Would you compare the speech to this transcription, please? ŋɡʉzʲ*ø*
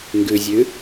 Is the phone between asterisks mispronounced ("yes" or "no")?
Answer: yes